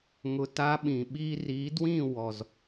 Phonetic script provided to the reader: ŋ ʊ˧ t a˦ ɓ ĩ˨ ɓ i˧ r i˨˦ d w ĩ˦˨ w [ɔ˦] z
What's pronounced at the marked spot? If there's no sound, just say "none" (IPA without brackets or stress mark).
ɔ˨